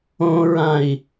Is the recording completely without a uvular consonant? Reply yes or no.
yes